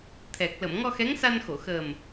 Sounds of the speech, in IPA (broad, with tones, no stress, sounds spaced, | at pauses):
t̪ʰ ɛ˨˩ k̚ l ə˨˩˨ m ŋ ɔ˧ x ɛ˧˥ ŋ s a˧ n x o˨˩˨ x əː˨˩ m